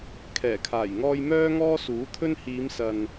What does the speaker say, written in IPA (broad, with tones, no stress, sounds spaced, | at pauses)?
kʰ ɛː˨˩ kʰ aː˨˩ j ŋ ɔː˧ j m œː˥ ŋ ɔː˥ s uː˨˥ t̪ʰ ɵ˥ n h iː˨˧ m s ɐ˨ n